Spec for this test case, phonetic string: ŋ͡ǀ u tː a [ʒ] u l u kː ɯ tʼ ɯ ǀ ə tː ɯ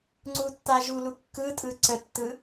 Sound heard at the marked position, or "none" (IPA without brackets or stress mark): ʒ